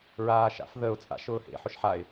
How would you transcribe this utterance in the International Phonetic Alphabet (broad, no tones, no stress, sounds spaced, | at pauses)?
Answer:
ɹ aː ʃ a̰ f ð ə ʊ̯ t͡sʼ a̰ ʃ ʊː h ḛ ħ ʊ ʃ ħ a ɪ̯